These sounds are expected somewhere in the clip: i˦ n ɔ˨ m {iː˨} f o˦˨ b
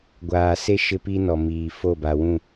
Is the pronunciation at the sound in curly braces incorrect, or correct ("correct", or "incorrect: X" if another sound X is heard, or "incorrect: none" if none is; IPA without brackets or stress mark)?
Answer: correct